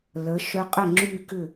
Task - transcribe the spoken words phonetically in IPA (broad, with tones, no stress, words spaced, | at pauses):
lə˩˧ ʃœ˧qʼə˥˩ ŋ͡ǁy˥˧kʏ˥˩